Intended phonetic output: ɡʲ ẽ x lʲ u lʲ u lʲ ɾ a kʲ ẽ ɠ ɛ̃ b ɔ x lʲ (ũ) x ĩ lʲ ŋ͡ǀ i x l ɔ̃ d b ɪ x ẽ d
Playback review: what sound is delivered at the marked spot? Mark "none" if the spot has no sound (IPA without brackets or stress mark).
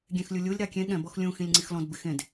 ũ